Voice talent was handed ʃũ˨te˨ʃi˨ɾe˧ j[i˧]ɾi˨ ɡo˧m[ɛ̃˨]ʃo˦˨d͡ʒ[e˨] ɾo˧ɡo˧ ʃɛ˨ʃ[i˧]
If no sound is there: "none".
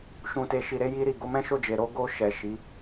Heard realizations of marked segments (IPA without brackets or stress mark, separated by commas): i˧, ɛ̃˦, e˨, i˨˦